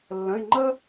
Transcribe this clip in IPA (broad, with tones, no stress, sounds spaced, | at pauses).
lː ə̃˩˧˩ ɪ̯ ŋ͡ǃ ə˦